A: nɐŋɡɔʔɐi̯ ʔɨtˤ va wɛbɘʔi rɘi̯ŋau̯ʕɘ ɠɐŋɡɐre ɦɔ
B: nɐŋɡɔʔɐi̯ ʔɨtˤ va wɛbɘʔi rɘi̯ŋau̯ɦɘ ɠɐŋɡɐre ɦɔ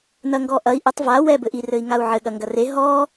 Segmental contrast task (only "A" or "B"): A